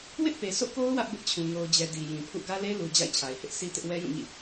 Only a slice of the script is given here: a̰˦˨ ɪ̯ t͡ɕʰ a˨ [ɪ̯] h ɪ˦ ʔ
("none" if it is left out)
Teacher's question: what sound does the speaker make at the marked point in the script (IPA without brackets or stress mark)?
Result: ɪ̯